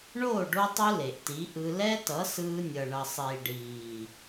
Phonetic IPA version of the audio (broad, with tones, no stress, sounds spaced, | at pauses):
ɳ oː˦˨ ɖ o˧ tˤ u˧ l e˨ ʔ t i˨˦ ʔ ɯ˧ l ɛ˦ t ʌ˨˦ s ɯː˧ nʲ ʌ˨ ɳ ʌ˨ sˤ iː˨ ɖ iː˨